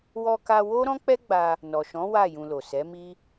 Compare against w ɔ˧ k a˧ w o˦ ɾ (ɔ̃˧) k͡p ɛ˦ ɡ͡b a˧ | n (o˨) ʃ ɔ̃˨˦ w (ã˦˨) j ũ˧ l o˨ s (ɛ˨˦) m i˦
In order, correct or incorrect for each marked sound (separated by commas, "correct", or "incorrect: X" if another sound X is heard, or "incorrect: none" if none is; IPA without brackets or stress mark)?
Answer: incorrect: ɔ̃˦, incorrect: ɔ˨, incorrect: a˦˨, correct